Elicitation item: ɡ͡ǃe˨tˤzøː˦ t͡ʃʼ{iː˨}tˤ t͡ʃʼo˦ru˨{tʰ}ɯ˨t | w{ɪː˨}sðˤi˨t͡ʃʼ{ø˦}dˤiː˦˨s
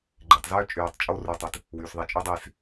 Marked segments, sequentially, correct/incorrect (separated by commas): incorrect, incorrect, incorrect, incorrect